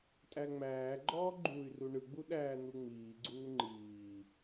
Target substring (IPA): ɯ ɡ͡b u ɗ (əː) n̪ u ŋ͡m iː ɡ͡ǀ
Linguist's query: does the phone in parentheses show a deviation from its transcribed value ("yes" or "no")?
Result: yes